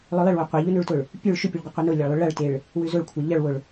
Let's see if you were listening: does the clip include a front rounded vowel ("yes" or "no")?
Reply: yes